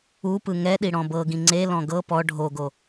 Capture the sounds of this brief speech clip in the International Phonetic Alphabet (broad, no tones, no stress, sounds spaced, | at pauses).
u p ɯ ŋ ɛ ɗ i ɽ ɔ̃ b ɤ ɡ ĩ ŋ͡ǀ e l ɔ̃ ɡ ɤ p ɔ ɖʱ o ɡ o